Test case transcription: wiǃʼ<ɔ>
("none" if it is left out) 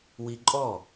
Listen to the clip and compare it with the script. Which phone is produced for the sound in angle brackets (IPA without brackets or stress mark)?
ɔ